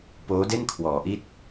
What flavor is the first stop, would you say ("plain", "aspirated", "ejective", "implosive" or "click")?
plain